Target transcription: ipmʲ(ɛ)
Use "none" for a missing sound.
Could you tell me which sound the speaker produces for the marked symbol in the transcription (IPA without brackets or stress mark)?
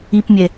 ɛ